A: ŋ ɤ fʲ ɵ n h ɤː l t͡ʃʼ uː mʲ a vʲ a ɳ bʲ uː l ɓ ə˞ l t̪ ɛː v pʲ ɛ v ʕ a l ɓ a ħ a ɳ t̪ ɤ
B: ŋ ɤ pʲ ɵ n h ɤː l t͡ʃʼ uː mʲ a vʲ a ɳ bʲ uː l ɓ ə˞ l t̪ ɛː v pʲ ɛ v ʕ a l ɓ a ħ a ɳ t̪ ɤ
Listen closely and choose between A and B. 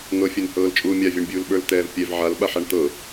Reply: A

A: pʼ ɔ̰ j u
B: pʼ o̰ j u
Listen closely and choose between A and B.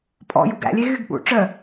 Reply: A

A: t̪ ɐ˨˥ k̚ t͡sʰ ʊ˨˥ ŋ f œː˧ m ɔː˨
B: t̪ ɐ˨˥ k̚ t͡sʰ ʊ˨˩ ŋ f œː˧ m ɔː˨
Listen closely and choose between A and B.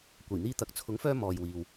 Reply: A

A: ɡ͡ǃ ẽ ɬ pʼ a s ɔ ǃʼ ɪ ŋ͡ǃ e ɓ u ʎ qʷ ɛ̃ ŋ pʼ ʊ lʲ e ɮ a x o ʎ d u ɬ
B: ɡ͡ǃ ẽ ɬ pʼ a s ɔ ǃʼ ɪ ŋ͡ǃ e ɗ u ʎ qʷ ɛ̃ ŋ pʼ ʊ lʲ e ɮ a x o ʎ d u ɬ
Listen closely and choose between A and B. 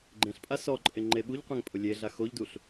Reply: A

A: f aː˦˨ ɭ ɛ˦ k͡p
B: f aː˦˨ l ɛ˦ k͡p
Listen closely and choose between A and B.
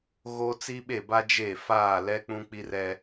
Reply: B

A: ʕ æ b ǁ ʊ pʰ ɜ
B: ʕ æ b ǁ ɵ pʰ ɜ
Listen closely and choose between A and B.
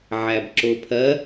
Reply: A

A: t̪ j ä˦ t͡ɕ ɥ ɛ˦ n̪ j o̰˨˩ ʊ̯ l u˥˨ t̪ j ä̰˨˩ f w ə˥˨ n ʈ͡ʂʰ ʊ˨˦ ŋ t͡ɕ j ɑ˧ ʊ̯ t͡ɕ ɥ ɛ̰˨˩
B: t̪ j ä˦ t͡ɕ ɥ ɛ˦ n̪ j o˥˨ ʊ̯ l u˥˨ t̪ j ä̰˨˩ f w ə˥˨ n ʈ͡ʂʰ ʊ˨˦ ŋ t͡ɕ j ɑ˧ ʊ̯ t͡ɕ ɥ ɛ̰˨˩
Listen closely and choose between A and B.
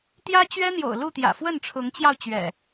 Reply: A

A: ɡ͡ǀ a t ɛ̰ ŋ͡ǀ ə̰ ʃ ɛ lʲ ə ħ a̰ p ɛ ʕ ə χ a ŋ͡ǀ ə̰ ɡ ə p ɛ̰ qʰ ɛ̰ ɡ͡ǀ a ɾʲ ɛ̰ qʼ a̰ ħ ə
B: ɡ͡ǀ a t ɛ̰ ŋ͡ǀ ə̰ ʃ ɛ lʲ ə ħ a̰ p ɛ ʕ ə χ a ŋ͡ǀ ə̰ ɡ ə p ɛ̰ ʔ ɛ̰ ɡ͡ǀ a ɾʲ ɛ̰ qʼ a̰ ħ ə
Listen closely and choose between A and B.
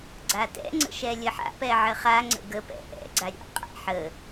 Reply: B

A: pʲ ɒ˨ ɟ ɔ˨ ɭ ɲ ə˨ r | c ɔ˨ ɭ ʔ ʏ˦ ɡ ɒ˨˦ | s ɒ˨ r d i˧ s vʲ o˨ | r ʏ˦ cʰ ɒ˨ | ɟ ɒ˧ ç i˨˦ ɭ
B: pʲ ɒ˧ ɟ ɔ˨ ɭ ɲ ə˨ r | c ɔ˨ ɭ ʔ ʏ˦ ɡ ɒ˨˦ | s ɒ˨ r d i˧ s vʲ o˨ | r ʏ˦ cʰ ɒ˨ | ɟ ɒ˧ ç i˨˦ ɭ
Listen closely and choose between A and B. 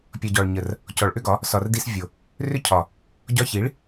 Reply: A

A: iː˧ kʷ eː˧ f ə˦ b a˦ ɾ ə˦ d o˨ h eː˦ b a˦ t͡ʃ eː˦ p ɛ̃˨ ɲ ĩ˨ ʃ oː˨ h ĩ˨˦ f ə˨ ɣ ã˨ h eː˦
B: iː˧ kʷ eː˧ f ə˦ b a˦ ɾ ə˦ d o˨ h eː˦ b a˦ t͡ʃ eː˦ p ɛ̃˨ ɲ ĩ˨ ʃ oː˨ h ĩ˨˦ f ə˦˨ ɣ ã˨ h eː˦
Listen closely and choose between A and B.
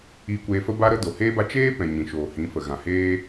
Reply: A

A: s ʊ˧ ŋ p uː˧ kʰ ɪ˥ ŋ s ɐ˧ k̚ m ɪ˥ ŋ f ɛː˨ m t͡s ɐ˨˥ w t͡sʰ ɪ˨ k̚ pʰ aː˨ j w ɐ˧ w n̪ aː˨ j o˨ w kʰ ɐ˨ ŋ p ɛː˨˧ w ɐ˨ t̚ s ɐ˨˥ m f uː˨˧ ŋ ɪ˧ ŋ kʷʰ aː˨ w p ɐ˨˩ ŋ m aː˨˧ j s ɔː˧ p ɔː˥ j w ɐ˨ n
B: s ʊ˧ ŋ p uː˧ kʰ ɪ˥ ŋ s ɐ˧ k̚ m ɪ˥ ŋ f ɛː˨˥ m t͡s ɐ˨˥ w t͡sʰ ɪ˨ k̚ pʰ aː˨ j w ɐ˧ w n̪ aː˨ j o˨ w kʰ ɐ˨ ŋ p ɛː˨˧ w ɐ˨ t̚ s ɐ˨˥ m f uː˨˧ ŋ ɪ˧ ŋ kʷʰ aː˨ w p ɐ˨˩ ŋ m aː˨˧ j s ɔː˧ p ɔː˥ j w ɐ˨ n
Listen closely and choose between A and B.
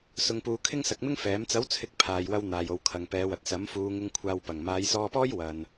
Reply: B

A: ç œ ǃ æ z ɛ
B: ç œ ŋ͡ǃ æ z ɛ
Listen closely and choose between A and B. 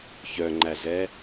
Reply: B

